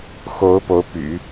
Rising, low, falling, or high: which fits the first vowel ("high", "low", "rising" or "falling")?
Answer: rising